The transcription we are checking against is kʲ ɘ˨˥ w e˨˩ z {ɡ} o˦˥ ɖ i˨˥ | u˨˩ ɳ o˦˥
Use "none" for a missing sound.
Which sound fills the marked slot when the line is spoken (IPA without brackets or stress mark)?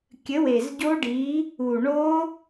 ɟ